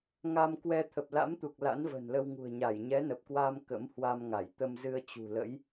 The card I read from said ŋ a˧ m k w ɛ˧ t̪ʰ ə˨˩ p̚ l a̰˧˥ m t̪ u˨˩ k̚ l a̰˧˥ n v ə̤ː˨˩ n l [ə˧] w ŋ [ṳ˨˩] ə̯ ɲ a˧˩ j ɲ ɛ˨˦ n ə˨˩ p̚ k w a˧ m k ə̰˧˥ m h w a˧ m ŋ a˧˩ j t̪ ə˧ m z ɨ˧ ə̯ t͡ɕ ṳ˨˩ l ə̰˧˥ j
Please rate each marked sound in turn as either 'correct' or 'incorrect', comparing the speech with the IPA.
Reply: correct, correct

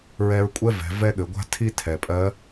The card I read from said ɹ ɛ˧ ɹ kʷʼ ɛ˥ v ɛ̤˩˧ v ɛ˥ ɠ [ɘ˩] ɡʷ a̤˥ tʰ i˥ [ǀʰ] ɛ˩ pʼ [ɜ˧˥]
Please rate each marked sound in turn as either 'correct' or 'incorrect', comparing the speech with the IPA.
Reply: incorrect, incorrect, correct

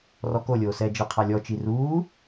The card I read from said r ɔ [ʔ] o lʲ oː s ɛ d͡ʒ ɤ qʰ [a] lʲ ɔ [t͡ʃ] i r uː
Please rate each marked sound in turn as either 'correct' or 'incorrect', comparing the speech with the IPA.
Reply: incorrect, correct, correct

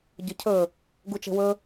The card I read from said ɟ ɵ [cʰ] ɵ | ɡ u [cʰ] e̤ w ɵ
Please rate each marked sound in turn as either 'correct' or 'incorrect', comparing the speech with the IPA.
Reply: correct, incorrect

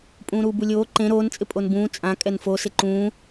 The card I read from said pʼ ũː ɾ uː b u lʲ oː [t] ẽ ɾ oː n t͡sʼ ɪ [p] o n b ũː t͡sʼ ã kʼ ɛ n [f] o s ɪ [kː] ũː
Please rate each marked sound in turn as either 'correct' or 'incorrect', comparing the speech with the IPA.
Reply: incorrect, incorrect, correct, incorrect

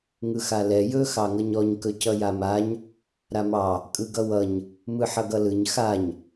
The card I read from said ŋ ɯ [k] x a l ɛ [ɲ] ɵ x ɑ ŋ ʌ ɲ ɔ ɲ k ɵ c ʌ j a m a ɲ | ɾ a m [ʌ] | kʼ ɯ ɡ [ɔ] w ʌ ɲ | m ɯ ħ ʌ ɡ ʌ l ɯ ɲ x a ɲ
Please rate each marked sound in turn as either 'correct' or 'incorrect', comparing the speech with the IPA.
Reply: incorrect, incorrect, incorrect, incorrect

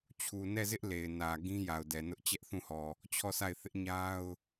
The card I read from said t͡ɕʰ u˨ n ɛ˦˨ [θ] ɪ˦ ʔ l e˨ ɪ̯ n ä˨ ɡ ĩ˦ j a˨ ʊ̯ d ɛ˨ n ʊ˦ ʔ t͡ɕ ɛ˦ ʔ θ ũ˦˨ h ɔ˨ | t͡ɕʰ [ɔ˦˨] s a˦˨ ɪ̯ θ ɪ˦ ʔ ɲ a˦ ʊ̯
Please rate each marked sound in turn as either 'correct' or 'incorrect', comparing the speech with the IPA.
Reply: incorrect, correct

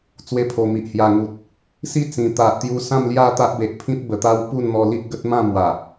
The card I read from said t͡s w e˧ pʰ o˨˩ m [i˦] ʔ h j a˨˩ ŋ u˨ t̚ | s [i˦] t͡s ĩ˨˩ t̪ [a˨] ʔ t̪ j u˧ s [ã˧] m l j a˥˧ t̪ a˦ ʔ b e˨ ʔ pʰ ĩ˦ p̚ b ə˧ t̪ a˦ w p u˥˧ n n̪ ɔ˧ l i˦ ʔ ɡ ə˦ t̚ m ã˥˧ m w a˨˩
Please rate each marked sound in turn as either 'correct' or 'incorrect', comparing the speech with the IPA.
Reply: incorrect, correct, correct, incorrect

